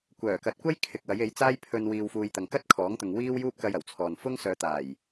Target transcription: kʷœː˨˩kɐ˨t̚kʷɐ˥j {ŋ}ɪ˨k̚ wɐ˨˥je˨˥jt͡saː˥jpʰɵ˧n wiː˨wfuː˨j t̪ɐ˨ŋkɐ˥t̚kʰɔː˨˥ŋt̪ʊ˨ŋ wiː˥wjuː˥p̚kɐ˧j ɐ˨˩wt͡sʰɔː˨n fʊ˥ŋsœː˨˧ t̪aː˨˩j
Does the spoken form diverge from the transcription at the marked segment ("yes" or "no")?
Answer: yes